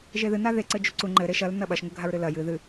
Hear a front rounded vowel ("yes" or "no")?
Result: no